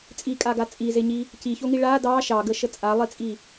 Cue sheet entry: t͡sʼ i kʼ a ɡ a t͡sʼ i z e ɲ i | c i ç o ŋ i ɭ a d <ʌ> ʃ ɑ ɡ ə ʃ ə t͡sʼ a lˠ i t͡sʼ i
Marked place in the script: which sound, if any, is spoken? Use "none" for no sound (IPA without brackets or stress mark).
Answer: ɑ